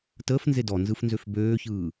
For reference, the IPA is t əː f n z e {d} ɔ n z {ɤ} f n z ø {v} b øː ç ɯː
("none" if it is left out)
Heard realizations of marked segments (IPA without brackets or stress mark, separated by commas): d, ɯ, f